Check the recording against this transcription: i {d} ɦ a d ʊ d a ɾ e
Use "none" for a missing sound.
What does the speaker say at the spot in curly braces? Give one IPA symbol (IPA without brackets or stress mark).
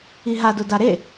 none